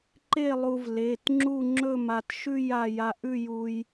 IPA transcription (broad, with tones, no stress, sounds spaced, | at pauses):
ǃ e˥˧ lˠ u˧ v l e˩˧˩ t ŋ͡ǁ u˥˧ ŋ͡ǁ ɵ˥˧ m a˧ t ʃ ʉ˥˧ j a˧ j a˧ ʔ ʉ˥˧ j u˧ j